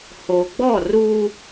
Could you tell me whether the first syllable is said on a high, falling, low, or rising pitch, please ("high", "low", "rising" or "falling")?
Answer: low